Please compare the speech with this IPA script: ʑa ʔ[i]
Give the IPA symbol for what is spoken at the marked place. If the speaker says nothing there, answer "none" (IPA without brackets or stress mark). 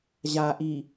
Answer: i